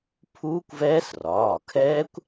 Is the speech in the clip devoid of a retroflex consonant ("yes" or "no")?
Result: yes